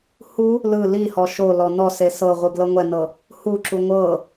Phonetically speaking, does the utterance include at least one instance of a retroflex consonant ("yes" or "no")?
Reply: no